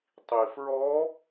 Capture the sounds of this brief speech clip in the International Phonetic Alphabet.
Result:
tˤ i f ɹ ɔ

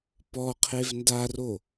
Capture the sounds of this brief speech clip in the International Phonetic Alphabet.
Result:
p ɔ qʰ e v n d a r o

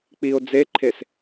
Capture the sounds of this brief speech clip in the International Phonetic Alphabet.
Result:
k͡p i o̯ d͡z e ǃʰ e s

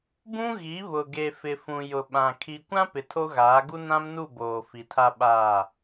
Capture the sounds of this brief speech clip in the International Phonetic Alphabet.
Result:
b ũ˦ ɣ i˨˦ β ʊ˨ ɡ e˨ f ɪ˨ f ũ˨ j ʊ˨ ɓ ã˨ kʰ i˨ kʷ ã˦ p ɪ˨ tʰ o˦ ɣ aː˨˦ ɡ u˦ n ã˦ m n u˦˨ b oː˨ f i˨ tʰ a˦ ɓ aː˦˨

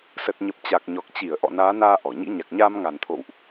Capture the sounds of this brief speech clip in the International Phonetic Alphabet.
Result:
s ə˨˩ t̚ ɲ ə˨˩ p̚ t͡ɕ a˨˩ k̚ ɲ ɔ˨˩ k̚ t͡ɕ i˧˩ ə̯ ʔ ɔ̰˧˨ n aː˨˦ n aː˧ ʔ ɔ˧˩ ɲ ḭ˧˥ ɲ a˨˩ k̚ ɲ aː˧ m ŋ a˨˩ n t̪ʰ o̰˧˨ w ʔ

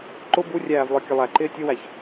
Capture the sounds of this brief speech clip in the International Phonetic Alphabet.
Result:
ǃ ʊ b u rʲ æː v lˠ ə˞ kʲ ə lˠ æ ǃ ɪː tʲ ʊ w æ ç

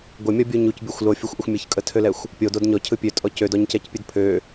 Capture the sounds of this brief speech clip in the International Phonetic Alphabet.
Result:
ɡʷ ə mʲ ɔ bʲ u ɲ u c bʲ o xʷ l o fʲ o xʷ ʔ ʏ xʷ mʲ ə ç kʼ ə tʰ ø l ɛ xʷ | pʲ o d o d ɲ ɔ cʰ ɯ pʲ ø tʼ ɔ c ø d ɔ ɲ c ɛ c pʲ ɨ d pʰ ø

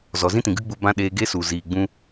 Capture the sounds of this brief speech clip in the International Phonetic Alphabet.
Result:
z ɔ˨ z ĩ˦ t ĩ˨ ɡ ɨ˦ ɡ͡b u˧ b ã˦ ɗ eː˧ ɡ e˦ s u˨ z iː˨ ɡ͡b ũ˧

